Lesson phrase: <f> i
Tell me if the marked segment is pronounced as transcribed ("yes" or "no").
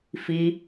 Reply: yes